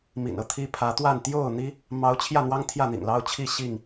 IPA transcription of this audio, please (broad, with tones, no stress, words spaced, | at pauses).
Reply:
mḭ˨˩nɤ˦t̪ʰi˦ pʰä˨˦t̪wa˥˨n t̪jo˥˨ʊ̯n̪i˦ | mɑ˨˦ʊ̯ t͡ɕʰjä˥˨n̪wɑ˦ŋ t̪ʰjä˥˨n̪ḭ˨˩ŋlɑ˦ʊ̯ t͡ɕʰi˥˨ ɕi˥˨ŋ